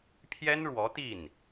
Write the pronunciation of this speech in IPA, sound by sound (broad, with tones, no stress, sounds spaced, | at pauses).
pʰ j ɛ˥ n ɻ w ɔ˧˥ t̪ i˥˩ n